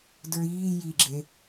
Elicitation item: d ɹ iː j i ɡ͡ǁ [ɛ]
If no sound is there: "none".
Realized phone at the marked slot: e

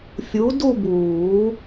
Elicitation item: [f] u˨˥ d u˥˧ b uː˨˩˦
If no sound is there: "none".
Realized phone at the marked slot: fʲ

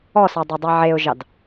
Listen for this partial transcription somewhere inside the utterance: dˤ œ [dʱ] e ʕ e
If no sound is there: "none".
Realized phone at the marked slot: dˤ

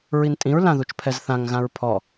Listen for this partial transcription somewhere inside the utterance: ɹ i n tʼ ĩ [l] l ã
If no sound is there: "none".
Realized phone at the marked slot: ɹ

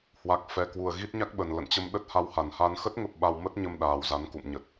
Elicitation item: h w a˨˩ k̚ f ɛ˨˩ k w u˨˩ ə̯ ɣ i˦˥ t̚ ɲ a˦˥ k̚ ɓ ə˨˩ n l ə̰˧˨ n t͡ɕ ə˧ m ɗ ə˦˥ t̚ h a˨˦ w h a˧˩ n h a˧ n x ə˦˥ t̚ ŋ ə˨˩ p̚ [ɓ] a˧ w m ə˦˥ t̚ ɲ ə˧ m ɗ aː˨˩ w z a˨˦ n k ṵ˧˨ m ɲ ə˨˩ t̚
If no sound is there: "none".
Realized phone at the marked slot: ɓ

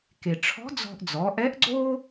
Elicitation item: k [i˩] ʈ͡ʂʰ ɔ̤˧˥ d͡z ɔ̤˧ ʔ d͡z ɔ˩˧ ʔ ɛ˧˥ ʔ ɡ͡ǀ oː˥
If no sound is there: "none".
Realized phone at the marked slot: e˩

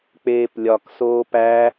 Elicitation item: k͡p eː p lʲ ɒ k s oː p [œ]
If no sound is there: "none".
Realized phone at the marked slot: æ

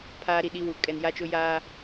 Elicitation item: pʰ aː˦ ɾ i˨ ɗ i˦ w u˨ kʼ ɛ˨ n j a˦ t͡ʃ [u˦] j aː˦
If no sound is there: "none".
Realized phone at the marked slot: ʊ˦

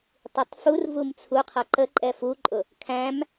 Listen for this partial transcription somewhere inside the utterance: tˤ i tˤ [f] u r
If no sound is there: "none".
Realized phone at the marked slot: f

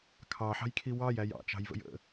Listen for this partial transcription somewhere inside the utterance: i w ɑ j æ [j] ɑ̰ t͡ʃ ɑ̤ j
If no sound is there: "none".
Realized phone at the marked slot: j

